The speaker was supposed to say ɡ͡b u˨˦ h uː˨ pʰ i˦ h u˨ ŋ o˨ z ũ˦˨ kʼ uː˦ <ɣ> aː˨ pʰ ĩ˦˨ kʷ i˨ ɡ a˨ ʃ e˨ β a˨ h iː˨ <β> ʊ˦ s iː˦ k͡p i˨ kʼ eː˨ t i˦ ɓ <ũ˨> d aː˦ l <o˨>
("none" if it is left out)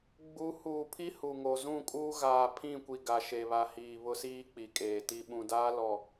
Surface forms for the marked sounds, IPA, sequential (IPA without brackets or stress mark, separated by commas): ɣ, β, ũ˨, ɔ˨